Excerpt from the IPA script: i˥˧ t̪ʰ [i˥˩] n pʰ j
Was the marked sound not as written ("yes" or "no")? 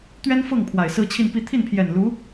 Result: no